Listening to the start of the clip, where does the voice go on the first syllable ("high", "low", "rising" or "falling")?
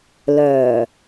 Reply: low